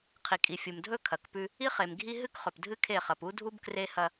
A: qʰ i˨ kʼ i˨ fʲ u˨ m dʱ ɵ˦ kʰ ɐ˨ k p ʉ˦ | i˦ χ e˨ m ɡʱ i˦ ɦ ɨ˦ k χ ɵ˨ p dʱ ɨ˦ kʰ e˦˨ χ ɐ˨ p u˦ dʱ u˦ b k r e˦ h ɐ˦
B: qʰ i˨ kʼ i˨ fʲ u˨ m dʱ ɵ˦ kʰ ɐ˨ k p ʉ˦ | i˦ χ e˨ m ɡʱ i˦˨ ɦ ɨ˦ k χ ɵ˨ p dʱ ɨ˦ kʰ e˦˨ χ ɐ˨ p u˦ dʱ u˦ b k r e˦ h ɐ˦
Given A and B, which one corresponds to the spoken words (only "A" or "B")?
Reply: A